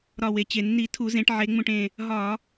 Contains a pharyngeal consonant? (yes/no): yes